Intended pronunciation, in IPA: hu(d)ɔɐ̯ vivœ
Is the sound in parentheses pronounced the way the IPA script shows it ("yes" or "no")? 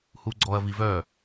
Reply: no